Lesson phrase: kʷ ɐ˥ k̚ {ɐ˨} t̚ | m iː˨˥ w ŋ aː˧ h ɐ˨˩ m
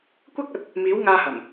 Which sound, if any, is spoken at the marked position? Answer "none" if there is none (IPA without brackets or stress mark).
ɐ˨